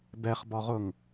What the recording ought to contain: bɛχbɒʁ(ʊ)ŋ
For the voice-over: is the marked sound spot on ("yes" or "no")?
yes